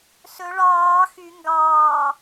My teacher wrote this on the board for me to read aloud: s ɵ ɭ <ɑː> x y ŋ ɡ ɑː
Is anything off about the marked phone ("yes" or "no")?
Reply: no